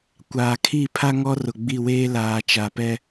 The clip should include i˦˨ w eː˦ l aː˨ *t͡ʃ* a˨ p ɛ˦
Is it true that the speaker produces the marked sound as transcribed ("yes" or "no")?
yes